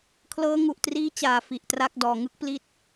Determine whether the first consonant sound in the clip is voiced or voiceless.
voiceless